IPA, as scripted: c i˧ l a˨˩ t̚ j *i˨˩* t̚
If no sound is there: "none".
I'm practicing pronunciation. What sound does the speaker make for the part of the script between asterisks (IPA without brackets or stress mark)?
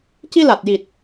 i˨˩